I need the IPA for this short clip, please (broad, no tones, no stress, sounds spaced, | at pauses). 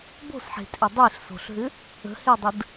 b o̤ s ħ e̤ tʼ e dˤ e ɬ s o̤ ɬ ɦ ʏ | ə̤ h e dˤ ə d